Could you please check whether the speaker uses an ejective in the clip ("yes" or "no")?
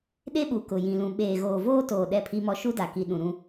no